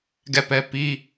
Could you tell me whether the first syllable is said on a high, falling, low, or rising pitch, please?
falling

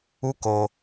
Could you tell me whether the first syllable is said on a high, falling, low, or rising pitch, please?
high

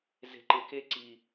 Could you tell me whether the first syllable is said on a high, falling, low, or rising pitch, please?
low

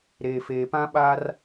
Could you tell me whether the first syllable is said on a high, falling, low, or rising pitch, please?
low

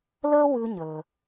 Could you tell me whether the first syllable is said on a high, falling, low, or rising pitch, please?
high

